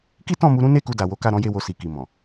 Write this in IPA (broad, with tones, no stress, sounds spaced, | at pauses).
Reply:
k i˦ t ɔ̃˦˨ m u˧ ɾ ũ˦ n e˦˨ k u˧ d a˨ w o˨˦ k a˦˨ ɾ ɔ̃˨˦ j e˦˨ w o˧ s i˨ k i˨ m ɔ̃˨